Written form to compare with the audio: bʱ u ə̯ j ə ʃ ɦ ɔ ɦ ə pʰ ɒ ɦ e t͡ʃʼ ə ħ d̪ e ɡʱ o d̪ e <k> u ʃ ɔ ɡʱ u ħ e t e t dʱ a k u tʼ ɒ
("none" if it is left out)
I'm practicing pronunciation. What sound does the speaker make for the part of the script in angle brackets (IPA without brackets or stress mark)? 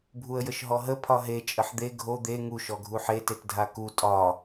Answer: ŋ